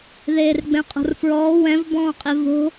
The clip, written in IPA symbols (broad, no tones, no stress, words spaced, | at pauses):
ðeːrɡ͡bɛ̃qʼo̤rfɹɔː wɛ̃v bɔ̃ːqʼevo̤